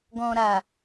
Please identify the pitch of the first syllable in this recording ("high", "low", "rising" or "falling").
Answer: low